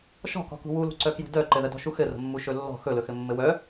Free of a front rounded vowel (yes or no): no